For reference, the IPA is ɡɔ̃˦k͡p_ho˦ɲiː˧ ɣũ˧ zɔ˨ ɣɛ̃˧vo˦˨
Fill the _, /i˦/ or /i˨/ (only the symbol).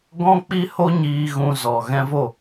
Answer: i˦